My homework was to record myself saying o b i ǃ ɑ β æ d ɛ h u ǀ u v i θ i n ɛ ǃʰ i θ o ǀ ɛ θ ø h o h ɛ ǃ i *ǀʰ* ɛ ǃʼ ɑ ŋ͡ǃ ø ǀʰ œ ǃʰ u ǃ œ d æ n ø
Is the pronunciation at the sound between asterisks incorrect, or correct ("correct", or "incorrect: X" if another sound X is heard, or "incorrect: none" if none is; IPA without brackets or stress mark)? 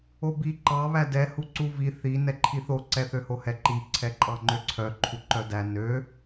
correct